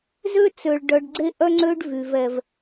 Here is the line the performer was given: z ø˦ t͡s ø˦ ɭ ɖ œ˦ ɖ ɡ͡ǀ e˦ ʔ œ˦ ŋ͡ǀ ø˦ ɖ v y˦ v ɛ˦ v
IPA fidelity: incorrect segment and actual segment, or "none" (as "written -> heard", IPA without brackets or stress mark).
none